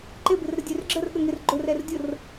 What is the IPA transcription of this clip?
ǃ ɪ b ɪ r ɾ ə dʲ ø r ɡ͡ǁ ə r ɠ ə ŋ ɪ r ɡ͡ǃ ʊ r ɛ r dʲ ʊ r

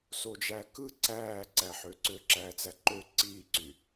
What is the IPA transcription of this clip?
s o d͡ʒ æ k ɯ ǀ æː ǀ æ ħ ø ǀ ø ǁ æː t͡s æ ǃ ø ǀ iː ǀ y

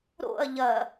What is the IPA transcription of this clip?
ɾ o̰ ɐ̯ ʎ ɐ

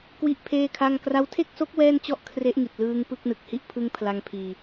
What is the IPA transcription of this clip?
k w i˥˩ ʔ pʰ eː˥˩ kʰ a˥˩ ŋ k r a˦˥ w tʰ e˥˩ k̚ s o˦˥ k̚ w ɛː˥˩ n t͡ɕ ɔ˥˩ ʔ kʰ r e˦˥ ʔ ŋ i˨˩ t̚ l ɯː˧ ŋ p ɯ˥˩ k̚ n ɯ˨˩ k̚ h i˥˩ ʔ pʰ ɯ˧ ŋ pʰ l a˧ ŋ pʰ iː˧

